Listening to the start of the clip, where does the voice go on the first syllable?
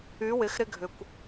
rising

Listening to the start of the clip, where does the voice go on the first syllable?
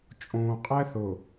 low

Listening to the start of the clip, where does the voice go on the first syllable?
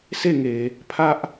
falling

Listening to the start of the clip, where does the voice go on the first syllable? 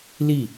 falling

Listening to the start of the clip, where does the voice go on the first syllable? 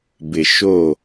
low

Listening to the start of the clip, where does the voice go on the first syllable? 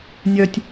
low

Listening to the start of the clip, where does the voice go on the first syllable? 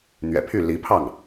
low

